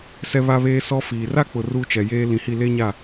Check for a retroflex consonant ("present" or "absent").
absent